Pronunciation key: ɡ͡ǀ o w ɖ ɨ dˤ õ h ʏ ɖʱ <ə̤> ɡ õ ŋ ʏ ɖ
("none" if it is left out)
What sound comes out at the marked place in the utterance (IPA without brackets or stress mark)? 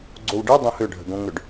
ə̤